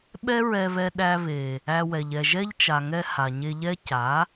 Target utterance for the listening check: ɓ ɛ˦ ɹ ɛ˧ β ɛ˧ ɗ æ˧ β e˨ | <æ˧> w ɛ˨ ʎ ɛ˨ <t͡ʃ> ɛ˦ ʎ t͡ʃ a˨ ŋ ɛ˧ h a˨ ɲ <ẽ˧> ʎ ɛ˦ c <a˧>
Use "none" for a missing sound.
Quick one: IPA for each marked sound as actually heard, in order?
æ˧, ʒ, e˧, a˨˦

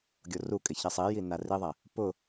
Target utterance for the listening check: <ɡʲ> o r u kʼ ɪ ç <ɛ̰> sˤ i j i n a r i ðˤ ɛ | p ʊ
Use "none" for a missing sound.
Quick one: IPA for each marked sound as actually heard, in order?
ɡʲ, ɛ

